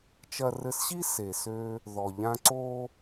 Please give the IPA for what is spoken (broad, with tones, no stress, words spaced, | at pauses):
t͡ʃɐ˧rɘ˧sɕi˥ se˩sø˧ | ðɔ˩ʎã˧ ǀo˧